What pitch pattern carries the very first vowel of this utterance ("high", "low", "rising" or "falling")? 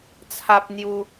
high